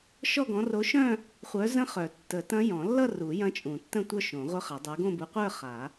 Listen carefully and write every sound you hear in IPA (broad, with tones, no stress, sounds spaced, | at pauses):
ʃ ɔ˥˧ ɡ ɔ̃˨˥ r o˨˥ ʃ œ̃˥˧ | χʷ œ˨˥ z ə̃˦˥ χ œ˨˩˦ tː ə˨˩˦ t ɐ̃˦˥ j ɔ̃˨˩˦ lː ʌ˥˧ r u˨˩˦ j ɐ̃˦˥ t͡ʃʼ ũ˨˩˦ tː ə̃˥˧ tʷ œ˥˧ ʃ õ˨˩˦ ʁʷ œ˦˥ χ ɐ˨˩˦ dˤ ə˞˨˥ ɡ õ˥˧ b u˨˥ qʷ ə˞˥˧ χ a˨˩˦